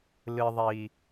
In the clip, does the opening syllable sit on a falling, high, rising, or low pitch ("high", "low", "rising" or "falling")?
low